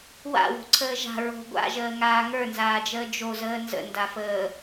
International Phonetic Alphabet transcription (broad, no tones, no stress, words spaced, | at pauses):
wa̰wo̤ǀʰəː ʒa̤ ɹo̤ ɡʷa̰ʒəːŋaː ŋə˞nzaːd͡ʒəː d͡ʒozəː nzə̰ndafəː